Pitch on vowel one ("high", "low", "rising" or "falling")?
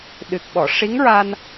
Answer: low